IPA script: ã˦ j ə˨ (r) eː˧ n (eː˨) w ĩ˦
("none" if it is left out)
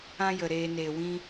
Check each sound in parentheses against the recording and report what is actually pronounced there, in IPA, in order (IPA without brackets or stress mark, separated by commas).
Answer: ɾ, eː˨